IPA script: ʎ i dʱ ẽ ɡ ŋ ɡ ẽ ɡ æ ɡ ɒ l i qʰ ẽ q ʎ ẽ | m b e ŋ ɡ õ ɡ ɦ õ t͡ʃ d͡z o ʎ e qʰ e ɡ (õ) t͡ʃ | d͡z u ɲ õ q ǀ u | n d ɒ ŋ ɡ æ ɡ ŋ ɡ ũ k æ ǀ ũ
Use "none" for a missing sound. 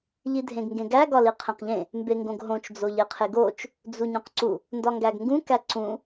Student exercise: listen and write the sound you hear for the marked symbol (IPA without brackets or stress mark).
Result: o